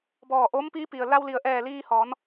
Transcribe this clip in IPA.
b ɔː˧˩ ʔ oː˧˥ m p iː˧˥ p i˩ ə̯ l a˧ w l i˩ ə̯ ʔ ɛː˧˩ l iː˧ h ɔː˩˧ n

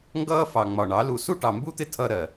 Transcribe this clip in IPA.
ŋ ɡ ʌː˦ f ɑ˨ ŋ͡m ɒ˨ ɳ ɑ˨˦ l u˧ s u˦ ʈ ɑ˨ m b u˦ t̪ ɪ˦ tʰ ʌ˧ ɾ ɜ˨

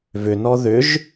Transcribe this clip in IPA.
v ʏ n ɔ ð ʏ ʒ

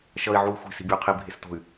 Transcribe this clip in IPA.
ʃ ʌ i̯ ʕ u y̯ xʷ i̤ s i̤ bʲ u y̯ qʰ i bʱ e s t o̤ y̯

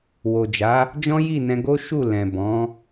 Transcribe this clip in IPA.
w o˨ d͡ʒ a˨˦ | d͡ʒ ɔ̃˦ j i˦˨ n ɛ̃˧ ɡ o˦ ʃ u˦˨ l ɛ̃˨ b ɔ̃˨˦

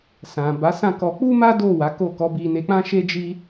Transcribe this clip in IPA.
s ã˨ b a˨˦ s ã˦˨ k ɔ˧ k͡p u˦ m a˦ d o˦˨ w a˨˦ k o˦˨ k ɔ˨˦ b i˧ n e˧ k͡p ã˦ ʃ e˦ d͡ʒ i˦

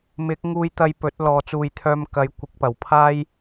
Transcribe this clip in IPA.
m ɪ˨˥ k̚ ŋ uː˧ j t̪ ɐ˧ j p ɵ˨˥ t̚ l ɔː˨ t͡s uː˨ j t̪ʰ œː˧ m k ɐ˨˥ j kʷ ɪ˨˥ k̚ p ɐ˨˩ w pʰ aː˥ j

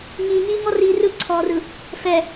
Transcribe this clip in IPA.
ŋ iː ŋ iː ŋ ɔ r iː r ɯ ǀʰ ɔː r ɯ | f ɛ

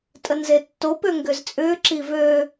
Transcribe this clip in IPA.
tʼ ə n z e tː o p ø ŋ ɡ ʏ z t͡sʼ ʏː ǁ i v ø

